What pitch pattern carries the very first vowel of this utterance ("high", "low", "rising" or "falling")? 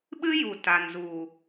high